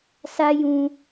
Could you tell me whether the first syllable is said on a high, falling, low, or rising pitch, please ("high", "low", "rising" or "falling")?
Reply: high